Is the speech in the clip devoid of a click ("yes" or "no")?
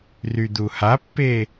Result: yes